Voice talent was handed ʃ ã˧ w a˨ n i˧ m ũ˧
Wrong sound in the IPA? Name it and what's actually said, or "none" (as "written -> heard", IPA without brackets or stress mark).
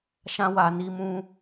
none